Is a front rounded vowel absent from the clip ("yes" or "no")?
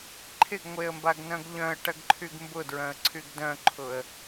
no